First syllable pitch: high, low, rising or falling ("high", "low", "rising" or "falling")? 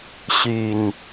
low